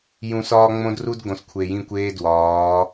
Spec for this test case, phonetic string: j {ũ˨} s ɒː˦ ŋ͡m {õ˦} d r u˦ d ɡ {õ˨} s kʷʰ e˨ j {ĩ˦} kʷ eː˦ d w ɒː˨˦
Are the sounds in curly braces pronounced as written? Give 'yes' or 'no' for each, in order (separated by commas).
yes, yes, yes, no